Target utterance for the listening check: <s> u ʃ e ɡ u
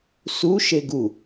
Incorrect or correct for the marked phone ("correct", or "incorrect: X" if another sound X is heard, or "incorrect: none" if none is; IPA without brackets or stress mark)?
correct